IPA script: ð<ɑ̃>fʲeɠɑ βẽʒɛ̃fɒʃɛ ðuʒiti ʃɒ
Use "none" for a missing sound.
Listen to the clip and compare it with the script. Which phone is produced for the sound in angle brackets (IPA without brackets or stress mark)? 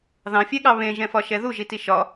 ɑ̃